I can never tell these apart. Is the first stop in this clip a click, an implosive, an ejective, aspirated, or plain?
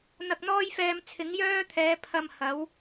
plain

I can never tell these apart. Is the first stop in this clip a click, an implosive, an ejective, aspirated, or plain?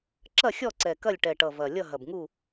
click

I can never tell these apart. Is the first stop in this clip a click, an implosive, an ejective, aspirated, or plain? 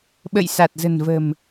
implosive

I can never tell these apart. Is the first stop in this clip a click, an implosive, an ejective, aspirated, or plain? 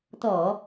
plain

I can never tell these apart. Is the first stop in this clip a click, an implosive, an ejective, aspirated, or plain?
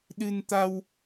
implosive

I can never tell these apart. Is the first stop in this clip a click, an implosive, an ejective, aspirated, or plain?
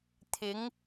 aspirated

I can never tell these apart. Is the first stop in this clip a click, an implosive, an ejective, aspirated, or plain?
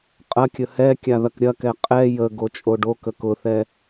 ejective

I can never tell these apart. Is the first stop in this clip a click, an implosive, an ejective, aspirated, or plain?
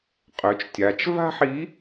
ejective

